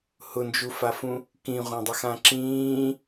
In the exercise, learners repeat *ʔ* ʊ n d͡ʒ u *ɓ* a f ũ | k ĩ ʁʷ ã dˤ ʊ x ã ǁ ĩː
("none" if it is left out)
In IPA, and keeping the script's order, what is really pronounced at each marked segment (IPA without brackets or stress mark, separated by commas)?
h, f